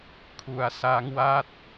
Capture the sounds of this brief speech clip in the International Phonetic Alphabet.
kʰ u˨˩ a̯ s a˦˥ ŋ w a˥˩ t̚

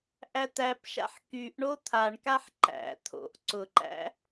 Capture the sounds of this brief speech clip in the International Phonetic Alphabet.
ʔ æ t̪ æ p ʃ a̰ ħ k y ʔ ɳ o t̪ʰ a ɳ k a ħ ǃ æ̰ t̪ʰ o̰ ʔ ǀ ʊ ǃ æ̰

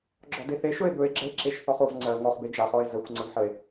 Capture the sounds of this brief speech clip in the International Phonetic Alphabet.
ɡ͡ǁ ɔ d e θ e ʃ ɵ e̯ b ɵ e̯ ɡ͡ǁ ə e̯ ǁ e ʃ θ ɔ χ o v ŋ͡ǀ ɜ ŋ ɔ χ b e d͡ʒ a χ ɔ e̯ z ə xʷ ŋ͡ǀ ə v ħ ə e̯

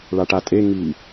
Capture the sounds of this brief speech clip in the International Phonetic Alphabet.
ɭ a ʈ a tʼ e ŋ i

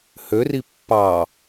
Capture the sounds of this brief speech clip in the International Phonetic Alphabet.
h ø r i pː ɑ

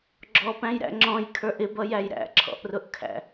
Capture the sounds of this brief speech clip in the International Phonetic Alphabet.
ɡ͡ǁ ɔ p æ̃ j ɾ æ̰ ŋ͡ǁ ɔ̃ j kʰ ə˞ ʔ ɪ b ʌ j æ j ɾ æ̰ ǁʰ ɔ̰ ʔ r ʊ ʔ kʰ æ̰

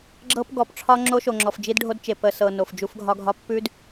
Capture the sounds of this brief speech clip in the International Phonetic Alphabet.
ɡ͡ǁ ɤ˦ p ɡ ɔ˨ p ʈ͡ʂʰ ɒ˦ ŋ͡ǁ o˦ ʃ o˨ ŋ͡ǁ ɔ˨ f d͡ʒ i˦ d ɖʱ o˦ d t͡ʃ e˨ p ə˨ s ɤ˨ n o˨ f d͡ʒ u˦ f ɡʱ ɒ˦ ɡʱ ɒ˦ pː ʉ˦ d

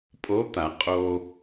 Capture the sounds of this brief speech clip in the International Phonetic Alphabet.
pʼ o˧˥ t̪ a˨˩˦ qʼ o˧

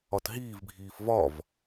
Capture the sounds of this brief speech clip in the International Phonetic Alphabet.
ɒ t ɦ iː v bʱ iː f v ɒ v

